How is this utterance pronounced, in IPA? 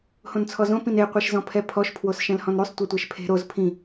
hõnt͡sʰɔzõ pĩne qʷɛʃzɔ̃pʰɛpʰɔʃ pʰwosʃɛ̃lhɔ̃nɾysˤ tʷɛtʷɛʃpʰe̤ ɾoz pʰĩ

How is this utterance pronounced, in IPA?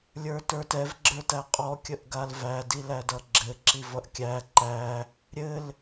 lʲə˞tə˞tɛv ɡ͡ǁə˞tæqʼɔ kʲəʔɡalvæ dilædʌɡ͡ǁɘ ǁivʌʔkʲæ ǃæ | ɾʲɘl

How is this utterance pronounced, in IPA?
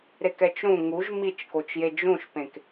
ɾekɛt͡ʃɾũ ŋuʒ mit͡ʃkot͡ʃje d͡ʒũʃpẽk

